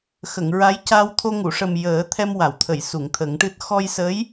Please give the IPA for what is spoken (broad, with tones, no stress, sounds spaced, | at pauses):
x ə˨˩˨ ŋ ɹ a˧˥ j c a˧ w t̪ʰ o˧ ŋ u˨˩˨ ʂ ə˨˩ m j əː˨˩˦ t̪ʰ ɛ˧ m w a˨˩˨ w t̪ʰ ə˨˩˨ j s u˨˩˨ ŋ t̪ʰ ə˨˩˦ ŋ ʈ ɨ˦˥ t̚ x ɔ˧ j s ə˧˥ j